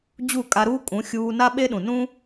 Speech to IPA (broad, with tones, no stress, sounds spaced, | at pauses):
d͡ʑ u˦˨ kʼ a˧ ɾ uː˦ kʼ ũ˨˦ xʲ uː˧ n a˦ ɓ e˦ ɗ ũ˨ n ũ˦